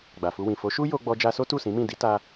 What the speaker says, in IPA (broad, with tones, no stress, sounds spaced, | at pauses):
ɡ͡b a˨ f u˧ w ĩ˨ f o˨˦ ʃ u˦ j o˧ ɡ͡b ɔ˧ d͡ʒ a˧ s o˦ t u˦˨ s ĩ˨˦ m ĩ˦˨ d i˨˦ t a˧